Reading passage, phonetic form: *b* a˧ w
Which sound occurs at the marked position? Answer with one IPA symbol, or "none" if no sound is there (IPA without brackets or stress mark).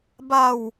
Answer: b